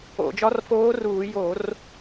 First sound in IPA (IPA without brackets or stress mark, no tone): o̰